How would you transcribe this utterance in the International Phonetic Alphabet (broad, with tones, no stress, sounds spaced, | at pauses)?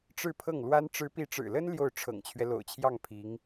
ʈ͡ʂ ɻ̩˥˧ pʰ ɤ˥˩ ŋ l w a˥ n ʈ͡ʂ ɻ̩˧˥ p i˧˥ ʈ͡ʂ ɻ̩˨˩ l ə˥ n l j o˥˩ ʊ̯ ʈ͡ʂʰ ɤ̰˨˩ ŋ t͡ɕʰ ɥ ɛ˦ l o̰˨˩ ʊ̯ t͡ɕʰ j ɑ˥˩ ŋ pʰ i˧˥ ŋ